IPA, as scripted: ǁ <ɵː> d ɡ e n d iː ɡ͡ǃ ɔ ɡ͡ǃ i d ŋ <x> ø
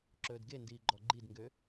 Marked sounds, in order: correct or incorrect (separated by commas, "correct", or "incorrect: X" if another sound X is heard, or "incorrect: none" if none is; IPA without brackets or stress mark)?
correct, incorrect: ɡ